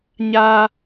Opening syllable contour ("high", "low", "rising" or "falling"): high